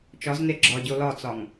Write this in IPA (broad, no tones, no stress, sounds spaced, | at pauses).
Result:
t͡ʃ ɒ z n e ɡ͡ǁ ɒ ɟ o l ɒ t͡s ɒ ŋ